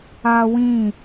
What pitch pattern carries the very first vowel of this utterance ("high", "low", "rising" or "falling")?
high